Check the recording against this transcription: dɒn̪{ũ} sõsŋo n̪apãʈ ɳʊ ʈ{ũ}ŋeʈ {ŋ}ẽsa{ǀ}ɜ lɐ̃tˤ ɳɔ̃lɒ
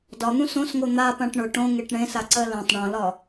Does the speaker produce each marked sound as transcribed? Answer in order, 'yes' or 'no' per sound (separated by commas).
yes, no, no, yes